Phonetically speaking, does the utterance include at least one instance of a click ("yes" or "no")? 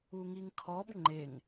yes